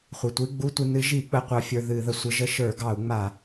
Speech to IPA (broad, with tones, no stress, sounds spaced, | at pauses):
χʷ i˩ tʷ i˧˥˧ ɡ͡b u˧˥˧ tʷ i˧ n ɨ˧˥ ʒ i˧˩˧ k͡p ə˧ qʷ ɑ˧ fʲ ə˞˧ ð ɨ˧˩˧ ð ə˩ sʷ ə˧˥ ʒ ə˧˥ ʃ ə˞˧˩˧ ɡ ɑ˧˩˧ u̯ ŋ͡m a˧˩˧